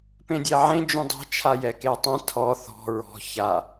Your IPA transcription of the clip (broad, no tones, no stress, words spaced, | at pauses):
pẽdʲɛʕẽ d͡ʒũdˤɛ̤ t͡ʃʰajɛketˤɛ̃ tʰɔ θɔ̤ ɹɔ̤ ça